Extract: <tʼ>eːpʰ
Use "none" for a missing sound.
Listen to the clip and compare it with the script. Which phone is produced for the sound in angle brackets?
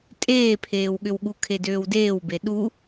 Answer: tʼ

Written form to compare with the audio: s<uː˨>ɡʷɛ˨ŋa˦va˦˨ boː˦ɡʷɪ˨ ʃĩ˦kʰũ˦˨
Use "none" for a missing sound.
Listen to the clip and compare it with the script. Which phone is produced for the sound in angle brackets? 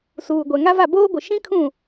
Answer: uː˨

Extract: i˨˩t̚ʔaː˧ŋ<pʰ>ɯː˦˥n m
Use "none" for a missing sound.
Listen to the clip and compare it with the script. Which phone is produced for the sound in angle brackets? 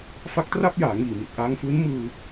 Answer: f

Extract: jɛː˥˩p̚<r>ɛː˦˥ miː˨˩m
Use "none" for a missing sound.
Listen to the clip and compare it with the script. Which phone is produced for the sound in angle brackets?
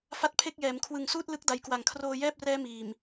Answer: r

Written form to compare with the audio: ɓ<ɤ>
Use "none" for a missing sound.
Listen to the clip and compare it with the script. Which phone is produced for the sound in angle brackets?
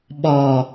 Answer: ɔ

